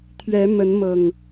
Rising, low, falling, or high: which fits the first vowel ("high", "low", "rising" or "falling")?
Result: rising